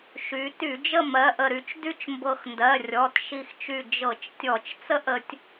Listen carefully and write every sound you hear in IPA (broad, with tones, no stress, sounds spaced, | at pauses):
ʃ y˩˧ t y˧˩˧ d͡ʒ ə˥˧ m ɜ˩˧˩ ʔ ə˧˩ ɾ y˧˩ t͡ʃ d y˥˧ t͡ʃ m b ɤ˧˩ x n d ɜ˩˧˩ rʲ ɔ˩˧˩ t ʃ i˧˩ x t͡ʃ y˧˩ d͡ʒ ɤ˧˩˧ t͡ʃ tʲ ɔ˧˩˧ t͡ʃ t͡s ə˥˧ ʔ ə˩˧ tʲ